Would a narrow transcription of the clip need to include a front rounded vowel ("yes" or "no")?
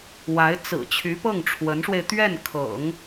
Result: yes